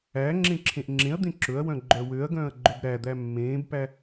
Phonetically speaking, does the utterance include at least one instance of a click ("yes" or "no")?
yes